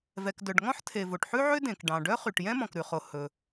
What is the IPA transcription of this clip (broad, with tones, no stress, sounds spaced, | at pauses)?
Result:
v ɛ˩ k d œ˩ ɖ ŋ ɔ̃˥ ħ tʰ e˩ v o˩ ʈ ħ ʉ˥ ʕ ø˥ d ẽ˩ k ɖ ɑ̃˩ ɖ œ˥ χ y˩ ʈ j ɛ̃˥ m ɔ̃˩ k ɾ ʉ˩ χ o˩ h ɵ˩